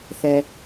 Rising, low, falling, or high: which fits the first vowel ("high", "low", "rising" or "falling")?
low